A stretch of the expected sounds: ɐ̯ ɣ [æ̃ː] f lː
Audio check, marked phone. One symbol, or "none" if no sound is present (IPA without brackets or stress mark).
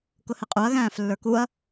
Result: æ̃ː